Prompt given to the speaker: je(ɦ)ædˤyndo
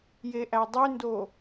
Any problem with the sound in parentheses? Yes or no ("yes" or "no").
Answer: yes